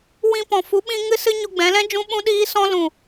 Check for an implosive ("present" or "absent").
present